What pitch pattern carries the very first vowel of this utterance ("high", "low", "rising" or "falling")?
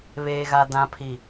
low